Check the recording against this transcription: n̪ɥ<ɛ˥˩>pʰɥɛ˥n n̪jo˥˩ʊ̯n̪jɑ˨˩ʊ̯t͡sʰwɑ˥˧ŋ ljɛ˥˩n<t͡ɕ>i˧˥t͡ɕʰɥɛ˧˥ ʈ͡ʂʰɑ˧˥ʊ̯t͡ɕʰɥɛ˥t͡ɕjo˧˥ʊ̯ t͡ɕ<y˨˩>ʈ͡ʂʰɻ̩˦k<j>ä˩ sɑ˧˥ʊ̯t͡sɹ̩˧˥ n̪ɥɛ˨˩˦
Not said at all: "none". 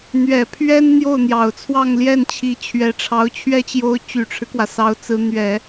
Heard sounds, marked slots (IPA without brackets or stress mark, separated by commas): ɛ˨˩, t͡ɕʰ, y˨˩, w